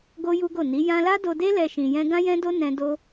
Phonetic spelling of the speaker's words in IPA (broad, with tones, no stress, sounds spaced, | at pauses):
ɡ o˦ j u˦ ɡ o˦˨ n i˨˦ j ã˦ l a˦ d o˧ d e˦ l ɛ˧ ʃ ĩ˧ j ɛ̃˦ ɡ ã˦ j ɛ̃˦ d o˦ n ɛ̃˧ d o˦